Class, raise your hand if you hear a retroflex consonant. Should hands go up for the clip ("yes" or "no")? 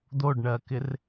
yes